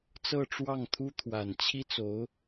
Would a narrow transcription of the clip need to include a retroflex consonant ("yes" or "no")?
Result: yes